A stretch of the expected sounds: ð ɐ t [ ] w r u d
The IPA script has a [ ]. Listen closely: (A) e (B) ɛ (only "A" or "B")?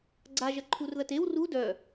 A